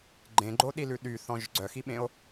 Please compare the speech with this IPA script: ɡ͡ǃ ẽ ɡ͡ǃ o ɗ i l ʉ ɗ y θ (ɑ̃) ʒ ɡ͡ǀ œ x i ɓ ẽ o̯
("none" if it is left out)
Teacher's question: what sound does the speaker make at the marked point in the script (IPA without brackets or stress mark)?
ɔ̃